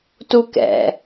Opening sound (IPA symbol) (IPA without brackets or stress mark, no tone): t